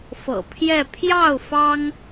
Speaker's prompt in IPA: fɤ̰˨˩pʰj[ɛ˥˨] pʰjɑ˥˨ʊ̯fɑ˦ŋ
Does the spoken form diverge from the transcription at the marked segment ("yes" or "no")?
no